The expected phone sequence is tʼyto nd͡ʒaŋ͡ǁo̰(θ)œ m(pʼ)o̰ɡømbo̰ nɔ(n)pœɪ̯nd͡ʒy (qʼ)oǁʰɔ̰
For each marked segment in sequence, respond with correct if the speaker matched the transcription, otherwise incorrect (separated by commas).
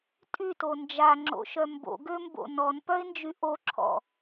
incorrect, incorrect, correct, incorrect